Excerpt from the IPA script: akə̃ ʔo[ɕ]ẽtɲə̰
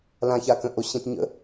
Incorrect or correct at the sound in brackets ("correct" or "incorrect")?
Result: correct